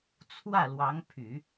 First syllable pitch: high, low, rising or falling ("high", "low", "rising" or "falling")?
falling